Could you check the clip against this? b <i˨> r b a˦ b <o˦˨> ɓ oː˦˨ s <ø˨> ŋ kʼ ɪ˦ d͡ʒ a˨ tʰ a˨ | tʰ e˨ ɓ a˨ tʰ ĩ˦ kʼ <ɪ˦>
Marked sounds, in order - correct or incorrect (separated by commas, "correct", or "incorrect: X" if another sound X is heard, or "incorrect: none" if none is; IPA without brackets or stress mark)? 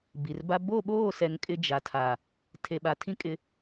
correct, correct, incorrect: ɛ˨, correct